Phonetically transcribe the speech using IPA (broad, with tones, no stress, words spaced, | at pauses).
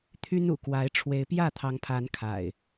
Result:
t̪ʰy˦nṵ˨˩kwa˨˦ɪ̯ ʈ͡ʂʰwe˨˦ɪ̯pjä˥˨t̪ʰɑ˨˦ŋpʰa˨˦n kʰa̰˨˩ɪ̯